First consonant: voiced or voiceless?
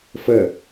voiceless